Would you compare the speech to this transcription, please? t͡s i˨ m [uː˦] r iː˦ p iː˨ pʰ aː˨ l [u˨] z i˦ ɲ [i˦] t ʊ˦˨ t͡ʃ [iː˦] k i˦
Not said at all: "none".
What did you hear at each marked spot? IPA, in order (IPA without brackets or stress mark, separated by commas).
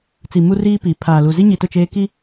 u˦, u˨, i˨, eː˦